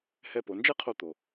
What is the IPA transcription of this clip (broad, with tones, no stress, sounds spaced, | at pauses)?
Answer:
h ɛ˧ p o˩˧ n d͡ʒ ɛ˥ qʰ o˧ t̪ o˩